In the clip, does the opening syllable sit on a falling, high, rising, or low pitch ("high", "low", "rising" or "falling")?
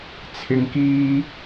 high